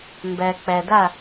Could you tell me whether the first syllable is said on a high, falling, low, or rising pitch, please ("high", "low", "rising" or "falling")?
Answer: low